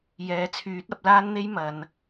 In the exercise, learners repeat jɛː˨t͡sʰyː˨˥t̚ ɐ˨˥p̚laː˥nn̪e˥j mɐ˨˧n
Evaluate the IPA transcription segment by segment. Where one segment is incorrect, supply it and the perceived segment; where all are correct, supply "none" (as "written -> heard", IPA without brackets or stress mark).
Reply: none